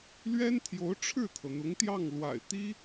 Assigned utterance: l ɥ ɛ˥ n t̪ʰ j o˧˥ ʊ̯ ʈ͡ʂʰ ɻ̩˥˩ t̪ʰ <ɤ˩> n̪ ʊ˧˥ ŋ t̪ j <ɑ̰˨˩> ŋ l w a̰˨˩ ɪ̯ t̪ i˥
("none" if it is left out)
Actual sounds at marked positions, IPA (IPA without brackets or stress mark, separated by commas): ɤ˩, ɑ˥˩